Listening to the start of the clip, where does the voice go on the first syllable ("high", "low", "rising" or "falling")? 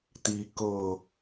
low